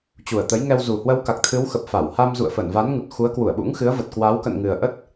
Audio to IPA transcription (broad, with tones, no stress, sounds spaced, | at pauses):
t͡ɕ u˨˩ ə̯ t̪ ə˨˦ j ŋ ɛ˧ w z u˨˩ h w ə˧ w k a˨˩ k̚ t̪ʰ ɨ˨˦ w x ə˨˩ p̚ f a˧˩ w h a˧ m z ṵ˧˨ ə̯ f ə˧˩ n v a˨˦ n ŋ u˨˩ t̚ x u˨˦ ə̯ k w u˧˩ ə̯ ɓ ṵ˧˥ ŋ x ɨ˨˦ ə̯ v ə˨˩ t̚ k w a˨˦ w k ə̰˧˨ n ŋ ɨ˨˩ ə̯ ʔ ə˦˥ t̚